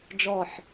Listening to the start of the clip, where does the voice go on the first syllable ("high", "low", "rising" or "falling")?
low